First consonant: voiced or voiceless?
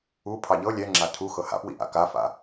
voiceless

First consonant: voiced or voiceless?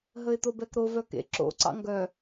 voiced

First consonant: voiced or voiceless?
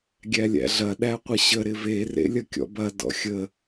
voiced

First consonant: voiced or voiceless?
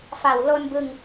voiceless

